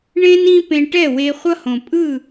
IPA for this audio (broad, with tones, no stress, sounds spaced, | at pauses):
ɳ ẽ˦ n ĩ˦ p ẽ˧ ʈ ɛ˦˨ w e˧ χʷ ʌ˦ h õ˨ pʼ ɯ˦˨